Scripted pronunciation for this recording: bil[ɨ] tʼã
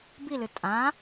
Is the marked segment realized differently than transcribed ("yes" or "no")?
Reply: no